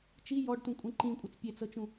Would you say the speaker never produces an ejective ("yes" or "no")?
no